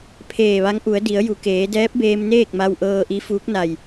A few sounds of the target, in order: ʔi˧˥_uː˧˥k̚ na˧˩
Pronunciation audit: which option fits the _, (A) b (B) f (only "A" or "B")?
B